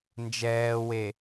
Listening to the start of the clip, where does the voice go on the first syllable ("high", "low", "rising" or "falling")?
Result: low